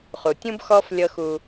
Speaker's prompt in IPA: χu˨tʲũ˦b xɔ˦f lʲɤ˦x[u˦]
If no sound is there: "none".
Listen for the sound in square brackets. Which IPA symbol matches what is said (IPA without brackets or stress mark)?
u˦